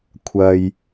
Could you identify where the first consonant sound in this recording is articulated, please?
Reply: velar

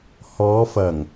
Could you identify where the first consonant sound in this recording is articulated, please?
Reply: glottal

